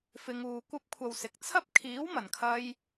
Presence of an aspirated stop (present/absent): present